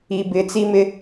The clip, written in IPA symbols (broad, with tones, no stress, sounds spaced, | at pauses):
i˨ b ɪ˨˦ t͡s i˦ m ɪ˦